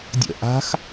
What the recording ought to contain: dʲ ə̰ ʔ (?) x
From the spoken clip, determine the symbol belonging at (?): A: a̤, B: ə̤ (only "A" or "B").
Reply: A